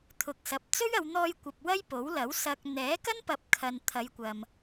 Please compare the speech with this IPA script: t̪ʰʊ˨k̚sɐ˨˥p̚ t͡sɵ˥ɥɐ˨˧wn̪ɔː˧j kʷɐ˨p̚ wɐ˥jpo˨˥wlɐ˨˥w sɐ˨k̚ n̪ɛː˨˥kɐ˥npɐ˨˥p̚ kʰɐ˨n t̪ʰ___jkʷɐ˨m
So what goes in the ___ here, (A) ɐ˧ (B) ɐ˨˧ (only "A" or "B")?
B